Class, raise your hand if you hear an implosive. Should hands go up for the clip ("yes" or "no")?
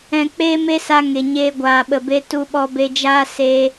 yes